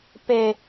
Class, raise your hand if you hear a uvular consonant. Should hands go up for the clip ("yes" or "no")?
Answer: no